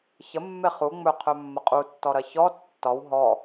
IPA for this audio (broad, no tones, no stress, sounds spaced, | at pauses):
ç ə mː e χ u ŋ͡m ɵ qʰ ɵ mː ɐ qʼ u tː ɔ ɾ ɐ ç ɔ tː ɒ w ɦ ɔ